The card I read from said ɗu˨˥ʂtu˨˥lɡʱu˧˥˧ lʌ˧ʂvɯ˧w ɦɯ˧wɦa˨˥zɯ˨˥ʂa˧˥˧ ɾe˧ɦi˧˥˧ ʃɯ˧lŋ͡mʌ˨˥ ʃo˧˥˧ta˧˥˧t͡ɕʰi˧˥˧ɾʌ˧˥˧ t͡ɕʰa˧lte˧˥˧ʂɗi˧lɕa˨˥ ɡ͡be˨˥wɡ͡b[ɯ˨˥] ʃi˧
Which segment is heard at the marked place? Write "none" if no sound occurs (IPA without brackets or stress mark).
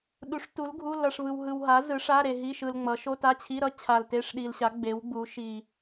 u˨˥